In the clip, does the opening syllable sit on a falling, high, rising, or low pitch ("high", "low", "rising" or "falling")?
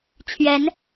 rising